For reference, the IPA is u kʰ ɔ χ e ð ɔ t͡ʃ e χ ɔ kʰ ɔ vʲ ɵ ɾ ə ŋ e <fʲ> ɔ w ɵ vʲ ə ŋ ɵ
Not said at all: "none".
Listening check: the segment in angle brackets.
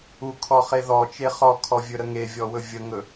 vʲ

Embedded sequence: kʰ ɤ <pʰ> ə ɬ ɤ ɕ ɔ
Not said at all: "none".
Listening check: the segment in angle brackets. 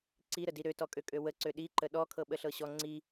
ɓ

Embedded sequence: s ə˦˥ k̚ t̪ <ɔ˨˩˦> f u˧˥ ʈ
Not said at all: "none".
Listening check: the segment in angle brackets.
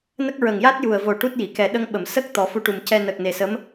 ɔ˨˩˦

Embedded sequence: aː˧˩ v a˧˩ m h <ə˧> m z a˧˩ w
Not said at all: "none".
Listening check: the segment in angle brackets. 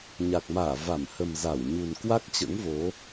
ə˨˩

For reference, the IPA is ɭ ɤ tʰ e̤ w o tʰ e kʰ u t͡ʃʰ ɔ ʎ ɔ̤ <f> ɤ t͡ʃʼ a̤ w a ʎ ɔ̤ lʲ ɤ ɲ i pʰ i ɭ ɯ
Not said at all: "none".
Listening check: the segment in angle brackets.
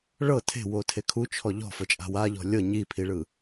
f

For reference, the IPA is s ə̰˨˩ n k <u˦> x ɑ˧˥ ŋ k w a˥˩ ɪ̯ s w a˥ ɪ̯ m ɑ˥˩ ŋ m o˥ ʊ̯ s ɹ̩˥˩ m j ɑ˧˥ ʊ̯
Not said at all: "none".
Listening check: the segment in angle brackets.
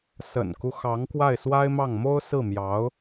u˦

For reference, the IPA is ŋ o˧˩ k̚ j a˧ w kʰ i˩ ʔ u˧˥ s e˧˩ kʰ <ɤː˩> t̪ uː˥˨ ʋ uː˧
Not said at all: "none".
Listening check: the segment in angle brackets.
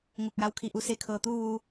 ɤː˩˧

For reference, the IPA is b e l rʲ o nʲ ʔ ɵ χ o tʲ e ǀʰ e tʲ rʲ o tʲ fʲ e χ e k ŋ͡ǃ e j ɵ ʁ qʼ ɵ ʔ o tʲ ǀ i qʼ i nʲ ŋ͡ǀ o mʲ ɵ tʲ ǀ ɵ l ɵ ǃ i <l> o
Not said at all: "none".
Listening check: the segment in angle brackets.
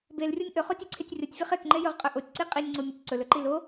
l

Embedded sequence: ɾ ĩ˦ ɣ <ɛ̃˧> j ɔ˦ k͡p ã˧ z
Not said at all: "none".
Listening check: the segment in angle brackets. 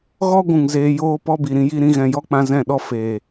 ɛ̃˧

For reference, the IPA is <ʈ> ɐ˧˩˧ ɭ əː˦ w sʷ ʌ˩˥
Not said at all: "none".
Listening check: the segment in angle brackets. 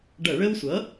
ɖ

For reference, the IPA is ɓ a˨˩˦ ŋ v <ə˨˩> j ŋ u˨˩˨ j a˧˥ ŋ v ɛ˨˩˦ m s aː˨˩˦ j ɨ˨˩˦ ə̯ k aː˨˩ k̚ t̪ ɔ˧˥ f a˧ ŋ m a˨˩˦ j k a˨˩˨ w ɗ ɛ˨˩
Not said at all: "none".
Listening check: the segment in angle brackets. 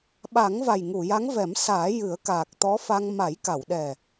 a˨˩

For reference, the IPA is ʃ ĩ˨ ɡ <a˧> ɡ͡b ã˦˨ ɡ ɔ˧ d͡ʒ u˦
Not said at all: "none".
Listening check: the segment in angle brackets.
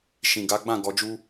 a˨˦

